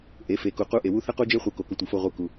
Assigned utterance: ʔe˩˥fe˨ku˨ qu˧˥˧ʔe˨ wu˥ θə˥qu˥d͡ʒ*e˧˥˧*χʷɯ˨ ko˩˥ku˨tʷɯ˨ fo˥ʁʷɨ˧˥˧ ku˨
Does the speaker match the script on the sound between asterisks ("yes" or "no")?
no